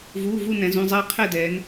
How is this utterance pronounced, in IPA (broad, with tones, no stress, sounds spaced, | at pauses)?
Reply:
v uː˩˧˩ v u˦˨ n ɛ̃˩˧ z ũ˩˧˩ zˤ ɛ˦˨ e̯ qʰ ɛ˦˨ d ɛː˩˧ n